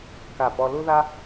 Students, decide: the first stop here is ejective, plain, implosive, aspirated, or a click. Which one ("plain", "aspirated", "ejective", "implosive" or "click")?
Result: plain